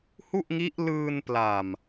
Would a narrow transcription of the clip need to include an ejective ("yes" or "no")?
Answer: no